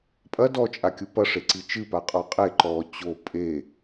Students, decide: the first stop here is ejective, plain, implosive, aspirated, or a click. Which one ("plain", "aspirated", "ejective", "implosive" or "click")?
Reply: ejective